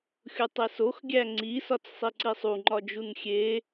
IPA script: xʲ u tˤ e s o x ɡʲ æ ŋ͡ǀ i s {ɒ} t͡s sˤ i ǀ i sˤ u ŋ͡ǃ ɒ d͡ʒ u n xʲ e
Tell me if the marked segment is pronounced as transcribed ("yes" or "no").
yes